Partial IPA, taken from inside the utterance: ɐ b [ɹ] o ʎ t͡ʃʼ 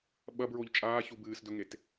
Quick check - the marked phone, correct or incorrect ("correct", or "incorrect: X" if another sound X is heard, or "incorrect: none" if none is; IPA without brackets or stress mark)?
correct